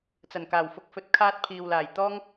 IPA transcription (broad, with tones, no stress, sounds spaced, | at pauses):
t͡s ɐ˨˩ n k aː˨˩ w f ʊ˧ k̚ f ɵ˧ t̚ kʰ aː˥ t̚ pʰ iː˨ w l aː˨˩ j t̪ ɔː˥ ŋ